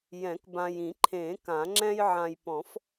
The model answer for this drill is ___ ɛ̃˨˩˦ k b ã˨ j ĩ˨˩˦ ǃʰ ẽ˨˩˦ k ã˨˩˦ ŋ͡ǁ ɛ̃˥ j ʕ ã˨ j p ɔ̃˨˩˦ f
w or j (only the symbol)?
j